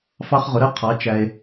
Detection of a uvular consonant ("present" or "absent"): present